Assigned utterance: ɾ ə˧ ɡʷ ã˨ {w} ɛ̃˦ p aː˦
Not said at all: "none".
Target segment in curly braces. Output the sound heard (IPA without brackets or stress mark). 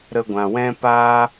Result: w